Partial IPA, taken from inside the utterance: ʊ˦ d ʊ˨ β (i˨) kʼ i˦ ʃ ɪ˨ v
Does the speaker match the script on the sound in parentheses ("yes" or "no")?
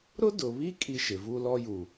no